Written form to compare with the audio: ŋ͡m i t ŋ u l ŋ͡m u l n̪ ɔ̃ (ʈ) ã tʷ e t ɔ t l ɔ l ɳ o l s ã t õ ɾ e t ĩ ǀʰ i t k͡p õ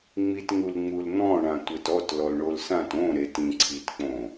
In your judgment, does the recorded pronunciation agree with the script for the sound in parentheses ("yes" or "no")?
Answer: no